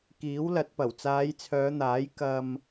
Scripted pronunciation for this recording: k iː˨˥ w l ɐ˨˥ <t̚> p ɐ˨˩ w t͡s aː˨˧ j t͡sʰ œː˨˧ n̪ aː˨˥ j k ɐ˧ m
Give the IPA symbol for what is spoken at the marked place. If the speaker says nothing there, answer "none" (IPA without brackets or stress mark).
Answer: t̚